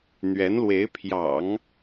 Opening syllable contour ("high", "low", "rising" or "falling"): rising